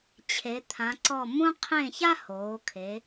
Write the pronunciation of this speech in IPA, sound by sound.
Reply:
t͡ɕʰe˩˧t̪ʰã˩˧ǀɔ˧˩ mũ˧qʰẽ˧˩ ça˥hoː˩˧kʰe˩˧

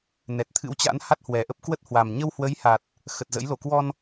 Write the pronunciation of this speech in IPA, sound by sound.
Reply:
nɛ˨˩t̚t̪ʰɨ̰˧˥wt͡ɕa̰˧˥n ha˦˥t̚hwɛ˨˩ʔə˦˥p̚kwə˦˥t̚ hwa˨˩mɲə˧w hwə˨˦jha˨˩t̚ | xə˨˩t̚ zə̰˧˥j lo˧˩kwɔ˧n

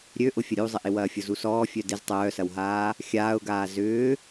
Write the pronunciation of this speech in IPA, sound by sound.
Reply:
ɾʲøʔʊ fʲɐɾʲuzˤɪʔɪ wɐːfʲʊzusɔː fʲœdɪz tˤœːsɐwɦaː | xʲaːʊ̯ɡaː zʏː

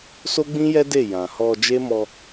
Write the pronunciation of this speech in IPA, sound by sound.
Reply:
so˦ɡ͡bĩ˦jɛ˦de˦˨ jã˨hɔ˧ d͡ʒe˦mɔ˧

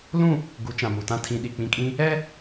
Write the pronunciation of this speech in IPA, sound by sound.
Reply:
lũ˦˨ | ɡu˨˦t͡ʃã˨mu˨tã˦˨ tʰĩ˨ɗi˨k͡pĩ˨kʼĩ˦ | ɛ˦

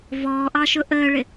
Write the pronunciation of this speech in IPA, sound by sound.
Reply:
vɔːʔɑʃʊ ʔəːɭɪ

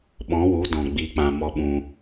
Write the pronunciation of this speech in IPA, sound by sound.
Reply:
ɓɔ̃˨˦wu˨˦dɔ̃˨ ɡ͡bi˨˦k͡pã˨ mɔ˧ɓũ˧

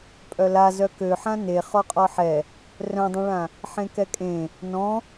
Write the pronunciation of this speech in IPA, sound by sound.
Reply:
pʼœla zœkøħã ne χɔqʼɔħɛ | rœ̃dˤœ̃ɭã | ħẽkɛkʼẽ | nɔ̃

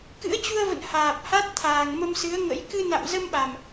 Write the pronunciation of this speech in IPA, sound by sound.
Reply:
kɨ̰˧˥ə̯t͡ɕu˧ə̯və̰˧˨n haː˨˩p̚ha˦˥t̚ t̪ʰaː˨˩ŋmə˧msɨ˨˦ə̯ŋə̰˧˥j kɨ˧na̰˧˨m zə˧mɓa˨˩m

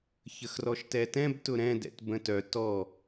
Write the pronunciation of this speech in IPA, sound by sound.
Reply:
çəxrɔʃtɛtɛ̃b tʊɾɛ̃ dɛ̰tbə̃tœ tɔ

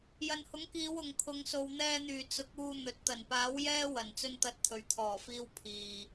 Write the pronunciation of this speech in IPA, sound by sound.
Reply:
jɐ˨nhʊ˨˥ŋkiː˨˧w ʊ˨ŋkʰʊ˨˧ŋ so˨wn̪ɛː˧n̪yː˨˩ t͡sʊ˨˥k̚uː˧ n̪ɵ˨t̚t̪ɐ˨˩n paː˨˥w jɛː˥wɐ˨˩n t͡sɵ˧nt̪ɐ˨t̚ t̪ʰɵ˨ɥt̪ʰɔː˨˩fiː˧w pʰiː˨

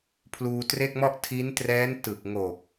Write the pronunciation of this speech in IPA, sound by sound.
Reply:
pʰluː˧tre˥˩k̚mɔ˥˩ʔ tʰi˦˥ntrɛː˦˥n tɯ˨˩k̚ŋo˨˩k̚

